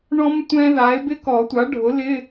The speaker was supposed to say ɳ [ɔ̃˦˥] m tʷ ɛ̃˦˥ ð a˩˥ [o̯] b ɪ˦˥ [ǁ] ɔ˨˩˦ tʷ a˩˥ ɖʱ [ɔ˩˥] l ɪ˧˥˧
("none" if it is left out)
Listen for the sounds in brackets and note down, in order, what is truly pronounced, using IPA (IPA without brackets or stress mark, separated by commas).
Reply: ɔ̃˦˥, e̯, k, ʊ˩˥